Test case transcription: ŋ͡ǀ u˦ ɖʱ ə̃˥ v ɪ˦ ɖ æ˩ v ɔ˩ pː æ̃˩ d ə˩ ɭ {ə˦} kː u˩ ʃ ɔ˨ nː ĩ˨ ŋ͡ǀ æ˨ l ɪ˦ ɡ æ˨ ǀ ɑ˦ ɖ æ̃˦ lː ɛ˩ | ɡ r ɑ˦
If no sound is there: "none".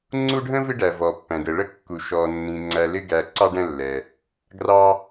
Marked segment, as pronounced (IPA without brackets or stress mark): ə˥